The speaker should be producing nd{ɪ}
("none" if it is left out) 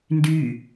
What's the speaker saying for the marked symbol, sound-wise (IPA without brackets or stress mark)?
y